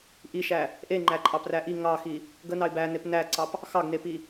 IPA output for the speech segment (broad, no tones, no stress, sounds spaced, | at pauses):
ʔ i ʃ æ | ʔ e ŋ͡ǃ æ ǃʼ ɑ p r æ ʔ i ŋ ɑ x i | ɡ ə n ɑ ɪ̯ b æ n e p n æ ǀ ɑ p | x ɑ ɡ n e p i